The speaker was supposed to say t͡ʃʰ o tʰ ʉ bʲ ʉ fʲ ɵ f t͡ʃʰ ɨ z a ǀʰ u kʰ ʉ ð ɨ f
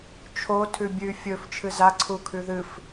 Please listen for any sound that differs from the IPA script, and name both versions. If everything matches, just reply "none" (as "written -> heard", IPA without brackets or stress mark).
none